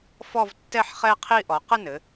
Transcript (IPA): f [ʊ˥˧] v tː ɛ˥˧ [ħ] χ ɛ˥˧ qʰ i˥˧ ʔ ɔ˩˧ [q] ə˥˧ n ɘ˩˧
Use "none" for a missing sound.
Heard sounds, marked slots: ɔ˥˧, ħ, q

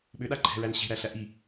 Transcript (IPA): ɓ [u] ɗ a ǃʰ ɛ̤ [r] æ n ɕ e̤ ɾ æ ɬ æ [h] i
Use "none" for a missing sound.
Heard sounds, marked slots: ʏ, ɹ, ʔ

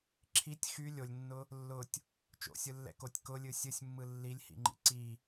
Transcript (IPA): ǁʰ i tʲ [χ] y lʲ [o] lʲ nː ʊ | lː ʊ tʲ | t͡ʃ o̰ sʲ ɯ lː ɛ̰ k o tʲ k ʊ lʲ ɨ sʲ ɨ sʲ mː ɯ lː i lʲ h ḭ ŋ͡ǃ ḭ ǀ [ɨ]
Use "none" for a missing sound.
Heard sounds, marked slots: x, o, i

